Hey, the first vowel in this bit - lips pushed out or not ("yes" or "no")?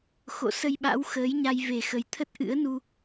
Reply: yes